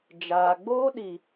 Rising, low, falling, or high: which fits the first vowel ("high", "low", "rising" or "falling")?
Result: low